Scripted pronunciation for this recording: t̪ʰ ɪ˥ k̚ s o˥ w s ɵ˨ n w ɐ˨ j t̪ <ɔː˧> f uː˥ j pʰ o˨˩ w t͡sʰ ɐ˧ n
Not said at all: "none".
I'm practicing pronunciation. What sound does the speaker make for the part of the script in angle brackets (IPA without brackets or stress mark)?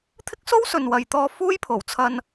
ɔː˧